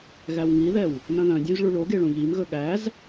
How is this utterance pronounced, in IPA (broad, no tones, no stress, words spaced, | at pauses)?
ɣæwŋiðɛw | mœ̃ðœ̃dʲũz ɭuɭoɡe ɭũʎimɣɵ ɠæz